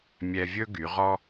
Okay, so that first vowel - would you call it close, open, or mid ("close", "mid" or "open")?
mid